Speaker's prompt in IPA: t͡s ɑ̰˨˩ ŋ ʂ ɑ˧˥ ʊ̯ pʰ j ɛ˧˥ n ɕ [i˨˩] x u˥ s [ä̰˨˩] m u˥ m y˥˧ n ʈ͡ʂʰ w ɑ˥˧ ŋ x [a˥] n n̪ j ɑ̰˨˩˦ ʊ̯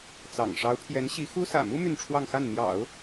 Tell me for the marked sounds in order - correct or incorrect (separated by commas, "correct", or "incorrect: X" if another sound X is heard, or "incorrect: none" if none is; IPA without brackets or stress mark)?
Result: incorrect: i˧˥, correct, incorrect: a˥˩